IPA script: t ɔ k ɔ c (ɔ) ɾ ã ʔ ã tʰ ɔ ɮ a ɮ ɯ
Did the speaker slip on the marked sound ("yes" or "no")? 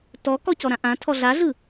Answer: no